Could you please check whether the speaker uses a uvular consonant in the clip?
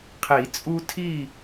yes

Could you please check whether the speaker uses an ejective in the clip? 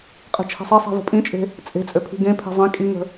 yes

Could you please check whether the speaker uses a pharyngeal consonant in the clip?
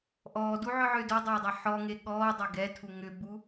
yes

